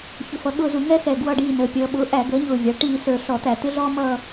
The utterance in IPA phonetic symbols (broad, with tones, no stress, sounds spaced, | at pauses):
ç ə˨˩ f ʌ˩˧ ɠ ʊː˦˨ z u˧˩˧ ŋ ɛ˦ x ɛː˨˩ ɡ w ʌ˦˨ ɖ iː˦˨ n əː˩˧ pʲ ʌː˩˧ ɓ ʊː˩˥ ʔ æ˧˩˧ ɡ əː˩˥ ɲ ʊː˨˩ vʲ ɑ˩˧ ʈ iː˦˨ s ə˞˧˩˧ ɬ ɔ˧˩˧ t̪ æ˧˩˧ t̪ ɪ˦ ɮ ɔː˦ m ʌː˦˨